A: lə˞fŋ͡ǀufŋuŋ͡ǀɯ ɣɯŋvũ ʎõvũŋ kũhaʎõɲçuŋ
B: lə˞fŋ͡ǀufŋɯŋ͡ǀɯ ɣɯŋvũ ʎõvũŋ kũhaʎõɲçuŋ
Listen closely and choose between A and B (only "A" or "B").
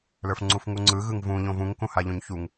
A